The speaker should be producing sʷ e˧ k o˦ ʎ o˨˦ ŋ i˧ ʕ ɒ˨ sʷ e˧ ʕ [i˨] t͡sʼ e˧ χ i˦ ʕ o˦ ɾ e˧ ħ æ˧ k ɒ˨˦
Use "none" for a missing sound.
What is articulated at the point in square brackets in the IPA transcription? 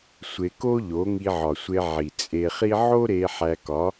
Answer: i˨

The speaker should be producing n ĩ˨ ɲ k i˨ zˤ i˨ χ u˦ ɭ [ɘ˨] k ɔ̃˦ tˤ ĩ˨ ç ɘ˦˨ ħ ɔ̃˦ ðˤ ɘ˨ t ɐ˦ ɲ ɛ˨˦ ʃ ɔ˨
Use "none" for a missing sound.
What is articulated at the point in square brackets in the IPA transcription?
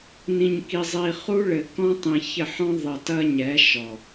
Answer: ɘ˨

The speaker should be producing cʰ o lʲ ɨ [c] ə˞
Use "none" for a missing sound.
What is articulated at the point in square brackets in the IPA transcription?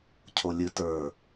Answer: t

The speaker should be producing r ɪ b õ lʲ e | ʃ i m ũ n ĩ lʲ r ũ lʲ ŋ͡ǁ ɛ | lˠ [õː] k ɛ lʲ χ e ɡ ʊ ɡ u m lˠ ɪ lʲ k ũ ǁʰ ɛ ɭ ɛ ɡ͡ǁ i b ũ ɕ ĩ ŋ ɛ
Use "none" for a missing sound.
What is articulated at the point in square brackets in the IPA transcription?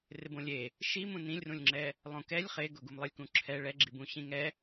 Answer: õ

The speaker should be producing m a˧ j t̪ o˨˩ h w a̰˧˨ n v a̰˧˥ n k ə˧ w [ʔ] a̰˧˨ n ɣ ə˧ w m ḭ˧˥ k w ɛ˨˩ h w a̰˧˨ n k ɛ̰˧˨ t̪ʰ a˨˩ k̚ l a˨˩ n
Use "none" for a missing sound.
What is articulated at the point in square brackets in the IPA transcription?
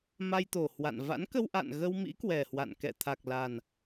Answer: ʔ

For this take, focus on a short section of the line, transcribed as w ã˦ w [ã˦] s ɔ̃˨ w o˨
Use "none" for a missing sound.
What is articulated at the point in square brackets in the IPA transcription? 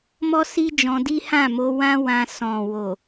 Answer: ã˧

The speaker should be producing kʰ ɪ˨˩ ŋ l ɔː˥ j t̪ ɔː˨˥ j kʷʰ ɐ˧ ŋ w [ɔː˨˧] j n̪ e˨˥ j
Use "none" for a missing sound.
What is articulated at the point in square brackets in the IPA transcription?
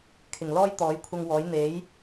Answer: ɔː˨˥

